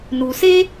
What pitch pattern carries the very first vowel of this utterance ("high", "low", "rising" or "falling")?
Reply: low